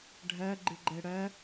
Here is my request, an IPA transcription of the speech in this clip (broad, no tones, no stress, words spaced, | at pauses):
ɖʱɜ ɡ͡ǃɨɡ͡ǃɛɽɜ